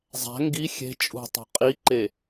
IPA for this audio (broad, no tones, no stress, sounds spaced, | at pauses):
zˤ æ̤ ŋ ɡ i xʲ e̤ t͡ʃʼ ṳ tˤ o̤ qʼ i ǃ e